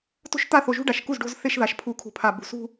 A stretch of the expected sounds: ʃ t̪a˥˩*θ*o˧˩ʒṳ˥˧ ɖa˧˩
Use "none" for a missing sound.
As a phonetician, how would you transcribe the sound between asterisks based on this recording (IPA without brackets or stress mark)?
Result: θ